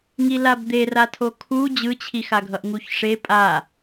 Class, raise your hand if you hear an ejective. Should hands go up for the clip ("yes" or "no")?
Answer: yes